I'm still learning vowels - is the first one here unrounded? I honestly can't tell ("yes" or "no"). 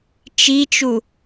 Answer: yes